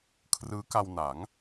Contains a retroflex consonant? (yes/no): no